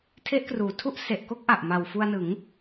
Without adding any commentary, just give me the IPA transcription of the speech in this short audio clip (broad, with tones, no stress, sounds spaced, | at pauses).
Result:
tʰ e˦˥ ʔ k r uː˩˦ tʰ u˥˩ ʔ s e˨˩ ʔ k o˥˩ k̚ ʔ a˨˩ ʔ m a˨˩ w f u˧ a̯ n ɯ˩˦ ŋ